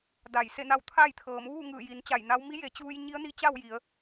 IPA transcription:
d a˧˩ j s e˥˨ n a˥˨ w t̪ʰ a˥˨ j t̪ʰ ɤː˩˧ m ʋ uː˥˨ ŋ ɯː˧˩ j i˩˧ n t͡ɕ a˧˩ j n a˧˥ w m i˧˥ j e˩˧ t͡ɕ uː˧ j ɲ i˧˥ ə̯ n i˧˥ t͡ɕ a˥˨ w j i˩˧ ə̯

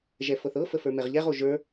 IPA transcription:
ʒ ɛ f ɤ θ ɤ f ə f ə˞ m ɛ ʁ ʎ ɛ ʁ o ʒ ə˞

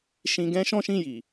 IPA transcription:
ʃ ĩ˧ ɡ ɛ̃˦ ʃ ɔ̃˦ ʃ ĩ˦˨ j i˨

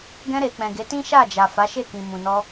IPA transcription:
ɡ ɛ̃˧ ɾ e˨ k͡p ɛ̃˨ ɡ e˨˦ t ĩ˦ ʃ a˦˨ d͡ʒ a˨ f a˨˦ ʃ e˦˨ k ĩ˨ m ũ˨ n ɔ˧

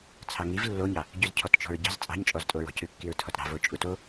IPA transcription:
t͡sʰ ɑ ŋ i v lː o ɲ ɑ | ɟ ʉ z cʰ ɔ t t͡ʃ ɔ̤ ɹ ɟ ɑ̤ z t͡sʼ ɑ̤ ɲ t͡ʃʼ ɔ z tʼ o ɹ ɔ̤ c ʉ kː i ɹ tʰ ɔ t ɾ ɑ̤ v o t͡ʃʼ u t o

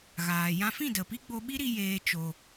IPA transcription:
ɣ aː˨ j ã˧ f ĩ˦˨ d ə˨ p i˦ ɡ͡b o˧ ɓ i˦ ɾ i˧ j eː˧ t͡ʃ o˧

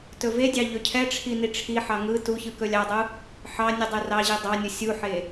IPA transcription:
t ɵ v e dʲ ɑ ʎ ɵ cʰ ɛ ʈ͡ʂʰ i n i ʈ͡ʂʰ i ħ ɑ ŋ ɯ t u ç ɯ k ɵ lʲ ɑ dˤ u | ħ ɑ nʲ ɯ dˤ ɛ r ɑ ʑ i dˤ ɑ nʲ u sʲ u ħ e

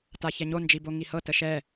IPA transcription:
t a ç ɛ ɲ o n d͡ʒ i b o ŋ i h ɤ t ə ʃ ɛ

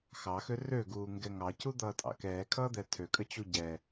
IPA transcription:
x ɑ x ø r ø ɡ uː ŋ ɡ ɛ ŋ ɑ c u d̪ ʌː tʼ ɑ̰ k ɛː kʰ ʌː d̪ ɛ tʰ ø kʼ ə t͡ɕ u ɟ ɛ

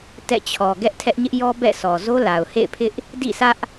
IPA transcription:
t ɛ̰˦˨ t͡ɕʰ ɔ˨ ɡ ɛ˦ ʔ tʰ ɛ˦ ʔ ɲ ɪ˦ ʔ j ɔ˦ b ɛ̰˦˨ s ɔ˨ z o˦ l a˨ ʊ̯ h ḛ˦˨ ɪ̯ pʰ ɪ˦ ʔ | d ḭ˦˨ s ä˦ ʔ

